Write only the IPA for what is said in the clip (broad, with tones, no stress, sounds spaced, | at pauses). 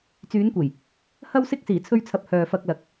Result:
t͡s yː˨˧ n kʷ e˨˩ j | h ɐ˧ w s ɪ˧ k̚ s iː˨˩ t͡sʰ ɵ˧ ɥ t͡sʰ ɐ˨ p̚ h œː˨ f ɐ˧ k̚ l ɐ˨˥ k̚